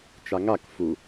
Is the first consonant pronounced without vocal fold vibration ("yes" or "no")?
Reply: yes